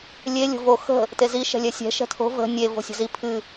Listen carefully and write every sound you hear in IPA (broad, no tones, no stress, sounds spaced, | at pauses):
lʲ e lʲ o̤ v o x ə̤ | t e z i ʃ ɛ̤ lʲ ɛ sʲ ɛ̤ ʃ ɛ̤ tʰ o̤ v ə̤ nʲ e v o̤ sʲ ə̤ z i pʰ ɨ